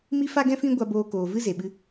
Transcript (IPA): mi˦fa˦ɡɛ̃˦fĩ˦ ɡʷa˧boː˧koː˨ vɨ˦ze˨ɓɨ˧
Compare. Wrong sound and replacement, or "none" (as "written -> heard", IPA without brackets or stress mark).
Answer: none